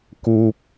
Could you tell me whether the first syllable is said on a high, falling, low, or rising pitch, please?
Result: high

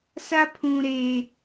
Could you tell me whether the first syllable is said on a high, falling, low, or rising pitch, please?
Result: high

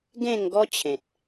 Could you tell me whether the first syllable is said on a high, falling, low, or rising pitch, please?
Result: falling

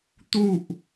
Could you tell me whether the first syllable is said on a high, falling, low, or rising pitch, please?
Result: falling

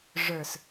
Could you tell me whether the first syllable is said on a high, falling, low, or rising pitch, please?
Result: low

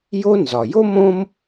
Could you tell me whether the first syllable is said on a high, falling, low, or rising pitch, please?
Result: high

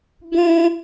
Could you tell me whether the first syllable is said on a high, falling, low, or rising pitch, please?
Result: high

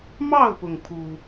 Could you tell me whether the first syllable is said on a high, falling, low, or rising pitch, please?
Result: falling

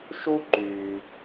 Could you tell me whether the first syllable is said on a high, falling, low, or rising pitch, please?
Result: high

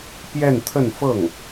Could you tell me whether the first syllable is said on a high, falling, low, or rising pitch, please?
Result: falling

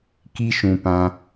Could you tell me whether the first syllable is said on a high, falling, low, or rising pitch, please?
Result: high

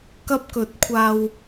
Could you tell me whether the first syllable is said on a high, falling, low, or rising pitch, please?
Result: high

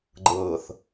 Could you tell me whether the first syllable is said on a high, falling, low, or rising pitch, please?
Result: low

